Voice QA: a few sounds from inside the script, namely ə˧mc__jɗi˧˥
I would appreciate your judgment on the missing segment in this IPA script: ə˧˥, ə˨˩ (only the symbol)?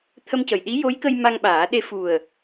ə˨˩